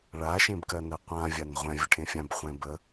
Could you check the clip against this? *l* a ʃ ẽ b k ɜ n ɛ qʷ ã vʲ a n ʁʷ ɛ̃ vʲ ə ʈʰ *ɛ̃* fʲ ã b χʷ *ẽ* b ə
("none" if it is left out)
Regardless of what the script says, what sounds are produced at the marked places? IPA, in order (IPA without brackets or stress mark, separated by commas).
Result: ɭ, ẽ, ɛ̃